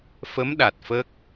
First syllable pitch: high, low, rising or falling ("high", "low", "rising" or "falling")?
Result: rising